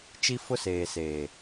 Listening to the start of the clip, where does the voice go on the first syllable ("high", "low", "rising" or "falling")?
high